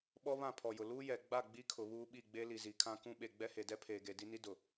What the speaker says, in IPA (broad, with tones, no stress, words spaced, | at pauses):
ɓɔ˦βã˦˨ pʰɔ˨jʊ˨ luː˦jɛ˨ ɡ͡ba˦˨ ɡ͡bi˦kʰʊ˨βuː˦ɓi˦˨ ɡ͡be˦li˨zi˨kʰã˦ kũ˦ɓe˨ ɡ͡bɛ˦he˨dɛ˦ pʰeː˨ɡe˨di˦ ni˦dʊ˨